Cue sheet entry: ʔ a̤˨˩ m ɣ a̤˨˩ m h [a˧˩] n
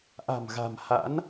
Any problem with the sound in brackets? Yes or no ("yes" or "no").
yes